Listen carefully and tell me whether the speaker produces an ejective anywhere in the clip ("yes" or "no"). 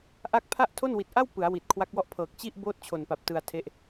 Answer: no